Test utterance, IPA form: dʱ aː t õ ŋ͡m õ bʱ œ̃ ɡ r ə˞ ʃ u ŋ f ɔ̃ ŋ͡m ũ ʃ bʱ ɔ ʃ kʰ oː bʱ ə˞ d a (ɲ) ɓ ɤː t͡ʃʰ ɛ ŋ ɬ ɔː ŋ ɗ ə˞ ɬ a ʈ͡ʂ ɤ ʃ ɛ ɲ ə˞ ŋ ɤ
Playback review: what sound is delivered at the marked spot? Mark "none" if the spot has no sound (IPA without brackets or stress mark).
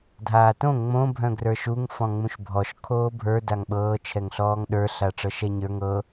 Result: ŋ